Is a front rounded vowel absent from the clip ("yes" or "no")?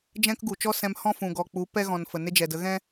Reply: yes